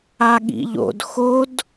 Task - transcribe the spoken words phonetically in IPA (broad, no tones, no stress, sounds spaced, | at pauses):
a ɠ ḭ ʎ o̰ d x o d